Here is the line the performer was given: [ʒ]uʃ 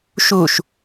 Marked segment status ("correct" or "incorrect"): incorrect